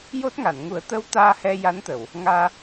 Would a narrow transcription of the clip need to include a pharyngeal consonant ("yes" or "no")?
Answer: no